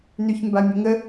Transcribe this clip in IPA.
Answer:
n y ç m b a mʲ ə ŋ ə

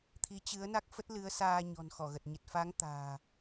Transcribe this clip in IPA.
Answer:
t̪ʰ i˨˦ t͡ɕ ɨ˨˦ ə̯ n a˦˥ k̚ f ə˦˥ t̚ l ɨ˨˦ ə̯ s aː˧ ɲ ɔ̤˨˩ n x ɔ˧˩ ɣ ə˨˩ t̚ ɲ ə˨˩ t̚ f a˨˦ ŋ t̪ a̤ː˨˩

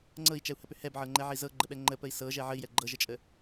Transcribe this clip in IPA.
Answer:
ŋ͡ǀ ɤ i̯ t͡ʃ ɛ u̯ h ə p ʏ h ɛ b ʕ ɤ ŋ͡ǃ ɛ ʕ i z ɤ ɡ͡ǃ ə ɓ ɛ ŋ͡ǃ ə p ə i̯ s ɤ ʒ ɛ ʕ ə i̯ j ɛ ɡ͡ǃ ɤ ʒ ə t͡ʃʼ ə

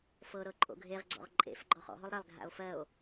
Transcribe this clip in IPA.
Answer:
f ɤ ɾ ɤ ǃʼ o̰ ɡʱ e ʁ ɡ͡ǀ ɔ̰ ʁ ǃʼ ḛ f ɡ͡ǃ ɔ χ ɔ̰ ɦ o lˠ ɾ e lˠ ɡʱ a̰ o̯ f ɜ o̯

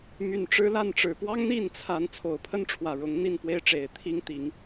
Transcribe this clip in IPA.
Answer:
m y˨˩ n ʈ͡ʂ ɻ̩˦ l a˥˨ n ʈ͡ʂ ɻ̩˨˩ p w ɑ˦ ŋ n̪ i˥˨ n t͡sʰ a˨˦ n t͡sʰ o˨˩ ʊ̯ pʰ ə˦ n ʈ͡ʂʰ w ä˨˩ ɻ ʊ˨˦ ŋ n̪ i˥˨ n p w e˦ ɪ̯ ʈ͡ʂ e˨˩ ɪ̯ t̪ʰ i˦ ŋ t̪ i˨˦ ŋ

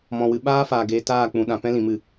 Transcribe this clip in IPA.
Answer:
m ɔ̃˨ w ɨ˨ ɓ aː˦ f aː˨ ɡ eː˧ t aː˦˨ k͡p ũ˨ ɗ ã˨ p ɛ̃˦ l ĩ˨ m ɨ˦˨

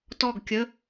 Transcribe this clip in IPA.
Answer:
t ɔ˥˨ ɡ kʲ ə˧˥˧

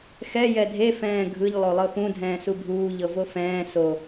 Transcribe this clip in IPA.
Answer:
x ɛ j ɛ dʱ e f ɛ̃ː ɡʱ ɯ ʎ lˠ o lˠ ɤ p ũ dʱ ɛ̃ː s u bʱ uː ʎ ɤ v o f ɛ̃ː s o

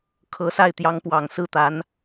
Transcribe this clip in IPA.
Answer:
kʰ ɤ˧˥ s a˥˩ ɪ̯ t̪ j ɑ˧˥ ŋ p w ɑ˨˩ ŋ s ɹ̩˥˩ t̪ a˧˥ n

